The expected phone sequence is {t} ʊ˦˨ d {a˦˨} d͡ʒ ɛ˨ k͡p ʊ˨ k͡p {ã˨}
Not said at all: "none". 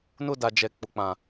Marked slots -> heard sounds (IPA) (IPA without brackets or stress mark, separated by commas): n, a˨, ã˨